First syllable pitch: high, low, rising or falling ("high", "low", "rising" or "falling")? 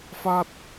falling